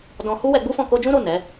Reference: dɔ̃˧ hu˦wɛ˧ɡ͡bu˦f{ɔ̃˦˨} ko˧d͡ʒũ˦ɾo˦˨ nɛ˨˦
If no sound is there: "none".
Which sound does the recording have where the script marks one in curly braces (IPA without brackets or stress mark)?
ɔ̃˦˨